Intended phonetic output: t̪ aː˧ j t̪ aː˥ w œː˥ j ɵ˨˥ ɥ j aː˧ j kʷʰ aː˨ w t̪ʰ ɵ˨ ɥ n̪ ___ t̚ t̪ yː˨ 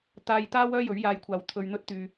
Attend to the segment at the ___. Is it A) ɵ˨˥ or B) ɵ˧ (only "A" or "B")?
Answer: B